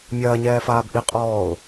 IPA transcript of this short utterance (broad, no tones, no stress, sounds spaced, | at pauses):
mʲ ɐː ɲ ɛː f aː b ʔ i qʼ ɔː ʊ̯